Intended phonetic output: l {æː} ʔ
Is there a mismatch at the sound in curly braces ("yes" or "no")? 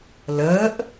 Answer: yes